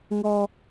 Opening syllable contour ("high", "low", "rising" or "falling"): high